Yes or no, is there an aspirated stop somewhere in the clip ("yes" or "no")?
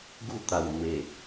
no